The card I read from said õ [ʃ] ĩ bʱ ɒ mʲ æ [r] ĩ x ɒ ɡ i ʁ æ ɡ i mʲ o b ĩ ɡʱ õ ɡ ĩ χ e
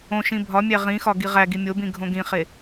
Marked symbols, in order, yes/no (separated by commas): yes, no